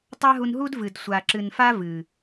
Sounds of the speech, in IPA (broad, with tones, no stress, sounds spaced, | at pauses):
tˤ a˦ ɦ u˧ n ɦ u˦ d v ɨ˨ d sʷ a˨ ǁ ɨ˨ n f a˦ v ɨ˨